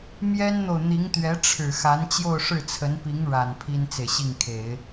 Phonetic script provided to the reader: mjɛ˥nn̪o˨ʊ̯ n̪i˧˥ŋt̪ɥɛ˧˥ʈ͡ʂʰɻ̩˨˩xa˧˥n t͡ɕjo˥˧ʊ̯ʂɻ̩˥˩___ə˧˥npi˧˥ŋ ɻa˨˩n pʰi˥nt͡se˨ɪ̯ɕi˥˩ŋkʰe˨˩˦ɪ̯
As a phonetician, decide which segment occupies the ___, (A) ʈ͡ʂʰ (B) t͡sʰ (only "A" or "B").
B